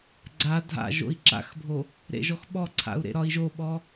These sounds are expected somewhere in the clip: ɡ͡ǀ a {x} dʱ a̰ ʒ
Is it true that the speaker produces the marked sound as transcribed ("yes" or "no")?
no